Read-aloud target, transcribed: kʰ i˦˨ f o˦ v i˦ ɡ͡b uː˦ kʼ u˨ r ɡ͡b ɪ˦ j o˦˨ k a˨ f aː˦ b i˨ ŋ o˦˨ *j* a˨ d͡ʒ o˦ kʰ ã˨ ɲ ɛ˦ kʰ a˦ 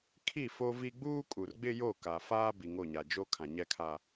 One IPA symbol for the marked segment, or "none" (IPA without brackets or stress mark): ɲ